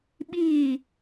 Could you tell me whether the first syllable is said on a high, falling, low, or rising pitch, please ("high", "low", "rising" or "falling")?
falling